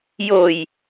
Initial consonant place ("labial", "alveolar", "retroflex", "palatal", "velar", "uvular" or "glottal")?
palatal